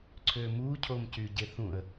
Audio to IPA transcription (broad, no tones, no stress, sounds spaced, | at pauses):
ǀʰ ø m u cʰ o m c y ɟ e θ ũ ə̯